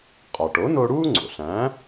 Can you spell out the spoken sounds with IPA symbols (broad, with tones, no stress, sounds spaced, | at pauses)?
qʼ ɒ˩ ʈ o˩˥ n o˧ ɽ uː˥ ŋ͡ǀ o̰˩ ɬ æ̃˩˥